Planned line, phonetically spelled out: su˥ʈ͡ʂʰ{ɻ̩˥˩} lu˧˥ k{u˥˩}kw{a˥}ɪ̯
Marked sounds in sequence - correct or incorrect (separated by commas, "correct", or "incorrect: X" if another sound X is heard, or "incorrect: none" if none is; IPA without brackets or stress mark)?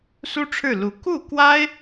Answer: correct, correct, correct